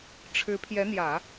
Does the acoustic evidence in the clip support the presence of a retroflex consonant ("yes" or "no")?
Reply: yes